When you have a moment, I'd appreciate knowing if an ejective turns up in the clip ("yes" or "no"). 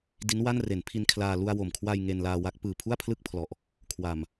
no